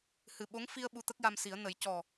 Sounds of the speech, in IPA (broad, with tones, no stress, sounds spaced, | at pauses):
h ɨ˨˩ ɓ o˧˥ ŋ f i˧ ə̯ ɓ u˧ t̪ ə˦˥ k̚ j a˧ m s i˨˩˦ ə̯ n ə˨˩˦ j c ɔ˨˩